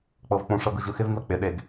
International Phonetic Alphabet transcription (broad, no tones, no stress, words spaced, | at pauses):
k͡pɤvk͡pũʂɤɡ ɯʑɯxɪvnzɤ k͡pɪɗeɡ